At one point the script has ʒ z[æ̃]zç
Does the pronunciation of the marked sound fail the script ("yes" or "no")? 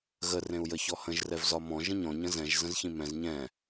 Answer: yes